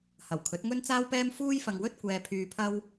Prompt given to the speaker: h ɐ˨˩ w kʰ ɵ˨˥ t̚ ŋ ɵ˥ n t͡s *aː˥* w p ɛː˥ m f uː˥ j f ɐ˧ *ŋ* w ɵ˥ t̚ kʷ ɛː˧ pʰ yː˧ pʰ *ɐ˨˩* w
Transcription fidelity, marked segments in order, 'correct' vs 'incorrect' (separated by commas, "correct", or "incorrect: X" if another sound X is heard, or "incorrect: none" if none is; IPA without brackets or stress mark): correct, correct, incorrect: ɐ˥